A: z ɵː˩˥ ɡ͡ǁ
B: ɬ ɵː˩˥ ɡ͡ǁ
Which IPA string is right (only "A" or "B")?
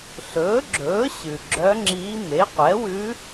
B